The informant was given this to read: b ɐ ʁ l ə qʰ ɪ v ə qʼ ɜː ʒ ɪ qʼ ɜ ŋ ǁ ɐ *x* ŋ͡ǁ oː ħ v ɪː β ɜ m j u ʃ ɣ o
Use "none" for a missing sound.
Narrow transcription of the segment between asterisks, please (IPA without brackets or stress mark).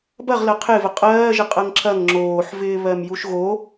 ŋ